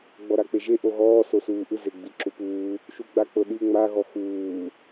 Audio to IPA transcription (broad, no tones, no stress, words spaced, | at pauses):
ɡ͡bɔɾak͡peʒe ʔoɣɔː sosuːʔɯ zeɡ͡biǁupuː | ʃuɡ͡bak͡pɤɗi ŋ͡ma ɣɔxuː